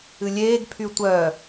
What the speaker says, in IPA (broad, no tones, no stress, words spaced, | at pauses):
ɨlʲeːɡ pʰytʷœ